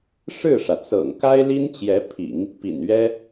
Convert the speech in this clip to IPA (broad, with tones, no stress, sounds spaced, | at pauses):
ʂ ɻ̩˥˩ ʂ ä˩ t͡s ɤ̰˨˩ ŋ k a˥ ɪ̯ l i˥ n t͡ɕ j ɛ˧˥ pʰ ḭ˨˩˦ ŋ | p ḭ˨˩ n ɥ ɛ˥